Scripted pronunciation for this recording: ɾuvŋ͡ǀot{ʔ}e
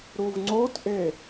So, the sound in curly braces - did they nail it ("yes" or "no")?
yes